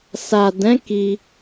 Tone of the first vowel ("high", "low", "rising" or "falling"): low